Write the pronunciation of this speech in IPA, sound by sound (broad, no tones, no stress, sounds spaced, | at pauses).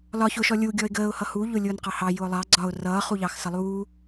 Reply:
l ɒ ç ʊ ʃ ɔ lʲ u ɡʲ ɔ ɪ̯ ɡ əː ʊ̯ h ʌ h u ʎ ʊ lʲ ʊː n q ɑ h ɑ j ʊː lˠ ɑ ɡ͡ǀ ɒ ʊ̯ r ʌː χ u ʎ ɑ x s ʌ lˠ uː